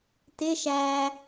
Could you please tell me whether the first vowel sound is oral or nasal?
oral